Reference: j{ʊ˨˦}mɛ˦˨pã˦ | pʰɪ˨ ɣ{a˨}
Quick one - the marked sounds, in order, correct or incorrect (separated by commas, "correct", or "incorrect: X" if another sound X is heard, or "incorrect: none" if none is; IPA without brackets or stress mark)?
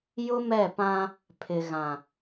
incorrect: ʊ˦, incorrect: ã˨